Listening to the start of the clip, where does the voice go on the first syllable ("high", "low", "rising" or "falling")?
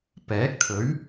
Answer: rising